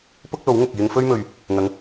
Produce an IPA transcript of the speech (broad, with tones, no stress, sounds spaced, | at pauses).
p ʊ˥ k̚ l o˨˥ w ŋ ʊ˨ k̚ j ɪ˧ ŋ f ɵ˥ ɥ m ɵ˨ ɥ | ŋ ɐ˨˧ ŋ